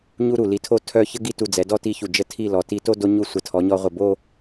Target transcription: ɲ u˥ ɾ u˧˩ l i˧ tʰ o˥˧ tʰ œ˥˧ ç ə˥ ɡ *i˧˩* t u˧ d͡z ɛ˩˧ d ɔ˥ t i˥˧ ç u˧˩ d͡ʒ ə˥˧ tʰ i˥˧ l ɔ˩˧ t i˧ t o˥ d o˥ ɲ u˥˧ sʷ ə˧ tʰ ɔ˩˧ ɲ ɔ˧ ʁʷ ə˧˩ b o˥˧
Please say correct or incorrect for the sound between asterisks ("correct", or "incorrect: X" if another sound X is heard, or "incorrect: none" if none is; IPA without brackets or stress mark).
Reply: incorrect: i˥˧